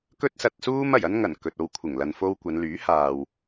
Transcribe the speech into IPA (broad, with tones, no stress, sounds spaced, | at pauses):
k ɵ˥ t̚ s ɐ˧ t̚ s uː˥ m ɐ˨˩ j ɐ˥ n ŋ ɐ˨˩ n k ɵ˨ t̚ o˧ w kʷʰ ɪ˨˩ ŋ l ɐ˨ n f o˧ w kʷ ɐ˨˧ n l yː˨˥ h aː˨ w